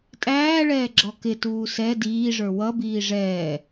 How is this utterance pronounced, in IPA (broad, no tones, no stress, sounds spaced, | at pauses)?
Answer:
tʼ æː ɭ ɛː ɡ͡ǁ ɔ k ɪ t uː s ɛ d iː ʐ ə˞ w ʌ b iː ʐ ɛː